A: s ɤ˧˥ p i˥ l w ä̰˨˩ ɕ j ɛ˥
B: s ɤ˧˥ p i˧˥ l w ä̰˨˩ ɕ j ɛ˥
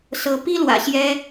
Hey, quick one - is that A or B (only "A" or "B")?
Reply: A